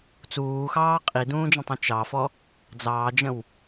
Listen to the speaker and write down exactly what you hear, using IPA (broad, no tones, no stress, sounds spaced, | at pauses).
t͡s uː x ɑː qʼ i d ũː d͡ʒ ə̃ tˤ ũ t͡ʃ ɑ f ɔ | d͡z ɑː d͡ʒ ə̃ w